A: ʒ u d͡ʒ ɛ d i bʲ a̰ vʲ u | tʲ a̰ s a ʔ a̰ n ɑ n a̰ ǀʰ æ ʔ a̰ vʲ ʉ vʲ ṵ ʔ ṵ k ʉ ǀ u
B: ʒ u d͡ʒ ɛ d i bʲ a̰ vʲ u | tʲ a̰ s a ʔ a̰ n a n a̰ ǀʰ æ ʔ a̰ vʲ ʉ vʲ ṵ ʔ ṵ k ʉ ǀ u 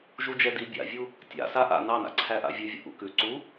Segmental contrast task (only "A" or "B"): A